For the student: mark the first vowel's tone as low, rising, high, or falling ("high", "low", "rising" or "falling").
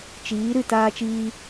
rising